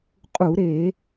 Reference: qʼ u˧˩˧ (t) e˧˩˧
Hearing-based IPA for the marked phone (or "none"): ɾ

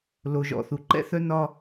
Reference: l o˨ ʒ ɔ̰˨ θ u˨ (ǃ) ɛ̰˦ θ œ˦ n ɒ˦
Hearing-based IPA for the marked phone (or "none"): ǃ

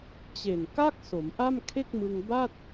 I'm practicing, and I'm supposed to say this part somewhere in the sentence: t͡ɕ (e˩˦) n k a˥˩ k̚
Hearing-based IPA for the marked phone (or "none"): e˨˩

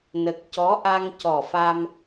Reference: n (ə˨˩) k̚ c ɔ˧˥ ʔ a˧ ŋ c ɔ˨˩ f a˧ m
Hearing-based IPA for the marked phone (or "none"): ə˨˩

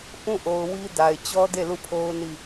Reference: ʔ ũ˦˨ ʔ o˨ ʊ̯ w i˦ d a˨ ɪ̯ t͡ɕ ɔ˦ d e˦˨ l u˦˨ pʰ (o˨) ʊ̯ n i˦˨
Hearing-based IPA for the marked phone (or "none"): o˦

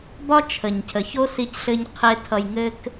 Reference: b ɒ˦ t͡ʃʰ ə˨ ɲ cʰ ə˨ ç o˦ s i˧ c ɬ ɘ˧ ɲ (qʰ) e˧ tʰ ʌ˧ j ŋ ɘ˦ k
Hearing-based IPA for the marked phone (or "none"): qʰ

